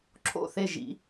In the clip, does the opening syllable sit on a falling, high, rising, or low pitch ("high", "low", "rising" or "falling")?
falling